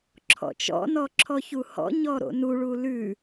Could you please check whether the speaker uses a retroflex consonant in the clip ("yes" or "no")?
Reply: yes